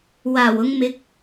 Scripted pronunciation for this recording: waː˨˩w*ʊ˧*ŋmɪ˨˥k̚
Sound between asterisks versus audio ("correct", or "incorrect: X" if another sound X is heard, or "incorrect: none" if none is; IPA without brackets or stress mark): correct